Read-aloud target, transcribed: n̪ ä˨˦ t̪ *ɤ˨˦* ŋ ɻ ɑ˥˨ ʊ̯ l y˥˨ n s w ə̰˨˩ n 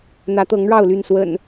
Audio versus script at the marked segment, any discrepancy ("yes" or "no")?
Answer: no